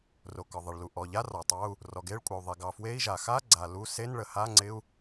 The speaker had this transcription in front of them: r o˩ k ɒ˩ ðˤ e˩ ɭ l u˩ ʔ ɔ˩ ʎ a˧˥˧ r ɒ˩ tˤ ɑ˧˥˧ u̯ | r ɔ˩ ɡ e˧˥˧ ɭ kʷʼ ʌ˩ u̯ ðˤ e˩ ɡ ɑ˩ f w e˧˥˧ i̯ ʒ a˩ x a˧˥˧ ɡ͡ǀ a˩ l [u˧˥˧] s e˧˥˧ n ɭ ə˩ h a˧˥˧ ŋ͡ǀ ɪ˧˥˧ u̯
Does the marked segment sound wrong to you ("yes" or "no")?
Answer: no